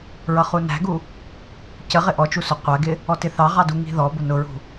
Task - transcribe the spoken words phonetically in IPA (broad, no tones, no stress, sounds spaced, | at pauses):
ɹ ʌ χ u n æ̤ ɡ u | c ə ʁ ɪ ʔ ɔ t͡ʃ u s ʊ qʷ æ ɡ ɪ | ɔ t ɪ θ ɑ ʁ ɑ d u ŋ i̤ ð ɔ b ʊ n ʊ ɹ ṳ